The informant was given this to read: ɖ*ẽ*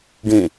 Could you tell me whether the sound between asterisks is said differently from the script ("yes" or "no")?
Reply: no